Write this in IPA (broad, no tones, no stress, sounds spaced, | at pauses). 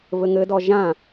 v ɘ ŋ ɘ d ɔ ʒ ã